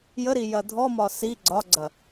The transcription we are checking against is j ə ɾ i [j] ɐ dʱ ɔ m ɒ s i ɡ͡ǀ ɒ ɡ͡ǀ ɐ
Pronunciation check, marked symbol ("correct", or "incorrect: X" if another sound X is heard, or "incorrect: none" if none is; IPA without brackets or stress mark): correct